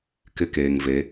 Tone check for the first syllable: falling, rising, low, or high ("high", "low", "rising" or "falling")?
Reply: high